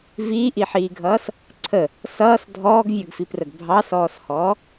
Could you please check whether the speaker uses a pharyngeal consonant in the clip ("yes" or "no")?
yes